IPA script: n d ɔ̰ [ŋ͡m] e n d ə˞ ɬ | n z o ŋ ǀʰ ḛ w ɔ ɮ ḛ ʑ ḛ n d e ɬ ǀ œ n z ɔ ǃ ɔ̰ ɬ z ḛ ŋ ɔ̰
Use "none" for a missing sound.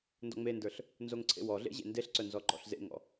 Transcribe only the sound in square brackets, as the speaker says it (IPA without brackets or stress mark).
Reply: ŋ͡m